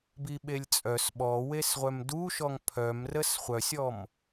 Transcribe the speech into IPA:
b i ɓ e lʲ t͡sʼ œ s ɓ ɔ w e s ʁʷ œ m d u ʃ ɔ ŋ pʰ œ m r ə s χʷ œ sʲ ɔ m

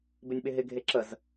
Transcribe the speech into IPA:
b ɪ nʲ ɓ ɪ ɦ ɪ ɡʱ e ǁ ə z

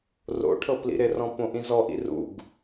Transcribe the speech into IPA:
r o̰ ʈʰ ɤ p l ḭ ɾ ɪ r ɔ̃ p õ ʔ ĩ z ɔ ʔ ḭ r ṵ ɡ

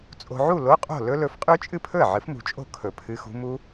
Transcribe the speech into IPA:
t͡sʼ o̤˨ ʕ u˥˩ l o˧˥˧ qʼ o̤˥˩ l ɵ˦˥ l ɵ˨˥ f qʼ ʉ˦˥ t͡ʃʼ ɨ˥˩ pʰ ɵ˥˩ ə̯ ʕ ɨ˨˥ f m ṳ˨ t͡ʃʼ o̤˥˩ kʰ ɵ˨˩˦ pʰ ɨ˧˥˧ x ṳ˦˥ m u˦˥

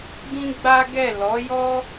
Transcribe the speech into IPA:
ɡ ĩ˦ ɡ͡b a˦ ɡ ɛ˦˨ l ɔ˨˦ j ɔ˦

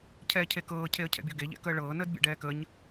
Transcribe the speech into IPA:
cʰ ɛː cʰ e k ɤː cʰ e ə̯ cʰ ɛ̰ bʲ ɤ ɡ e ʎ ɛ̰ k əː ɭ ɤː n əː d bʲ ɛ̰ ɖ ɛː k ə ɲ

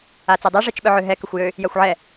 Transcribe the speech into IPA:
a t͡s e dˤ e ʐ i t͡ʃ ɓ œ ʕ ø ɦ ɛ k ə xʷ j ø | j a xʷ ʕ ɛ

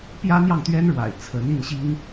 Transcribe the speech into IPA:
p j ä˥ n̪ j ɑ˥˩ ŋ t̪ ɥ ɛ˥ n ɻ w a̰˨˩ ɪ̯ t͡sʰ ə˧˥ n i˥˩ n ɕ i˥ ŋ

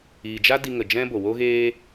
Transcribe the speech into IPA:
iː˨ d͡ʒ a˦ d i˧ ŋ ə˨ d͡ʒ ɛ̃˦ b o˨ w o˦ ɣ eː˦

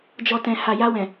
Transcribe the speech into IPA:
d͡ʒ ɔ˨ t ɛ̃˨ h a˨ j a˧ w ɛ̃˨

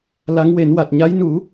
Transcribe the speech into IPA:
l a˧˥ ŋ w e˨˩˦ n w a˨˩ t̚ ɲ a˧˥ j n u˨˩˦

